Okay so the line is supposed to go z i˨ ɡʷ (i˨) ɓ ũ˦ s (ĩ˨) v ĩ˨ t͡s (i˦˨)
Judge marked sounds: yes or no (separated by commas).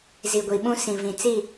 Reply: yes, yes, yes